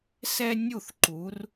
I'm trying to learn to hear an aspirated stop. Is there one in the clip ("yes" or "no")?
no